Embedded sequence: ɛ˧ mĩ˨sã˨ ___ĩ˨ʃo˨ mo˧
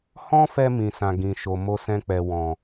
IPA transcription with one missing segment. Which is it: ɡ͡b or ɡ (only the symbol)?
ɡ